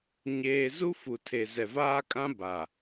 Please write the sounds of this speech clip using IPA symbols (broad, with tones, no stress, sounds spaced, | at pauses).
ɲ eː˦ z u˦ f u˨ tʰ e˨ z ɛ˨ v aː˦ kʼ ã˦ b a˨